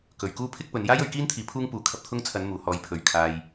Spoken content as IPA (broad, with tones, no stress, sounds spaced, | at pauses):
k ɵ˨˩ ɥ k uː˥ pʰ ɪ˥ k̚ p ɵ˨˧ n j aː˥ j ɵ˨˧ ɥ k iː˥ n t̪ʰ iː˨˧ pʰ uː˥ ŋ p uː˨˥ kʰ ɐ˧ p̚ t̪ʰ ʊ˥ ŋ t͡sʰ ɐ˨˧ n m uː˨˩ h ɔː˨˧ j pʰ ɵ˨˩ ɥ kʰ aː˨ j